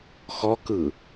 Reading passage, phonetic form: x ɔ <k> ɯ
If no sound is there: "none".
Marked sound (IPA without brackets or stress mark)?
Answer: k